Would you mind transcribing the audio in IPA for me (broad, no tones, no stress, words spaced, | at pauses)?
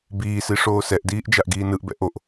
biːsi ʂoːsɛʔdiːʔ d͡ʒaʔɡiːnɯʔbɛ̰ ʔoʔ